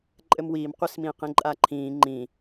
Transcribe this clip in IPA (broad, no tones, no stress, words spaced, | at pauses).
ǃʼɘmwiːmqʷismĩːq ĩǃʼaǃʰĩː ŋ͡ǃĩ